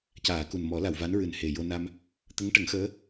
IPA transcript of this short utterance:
c aː˨˩˨ k u˨˩ n m ɔ˨˩˦ l a˨˩˨ w v a˧˥ n ɹ ɨ˨˩ n h e˨˩ j o˧ n a˧ m | t̪ ə˧˥ ŋ ʈ ə˨˩˦ ŋ x əː˧˥

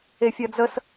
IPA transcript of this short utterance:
e fʲ ɐ d͡z ə s

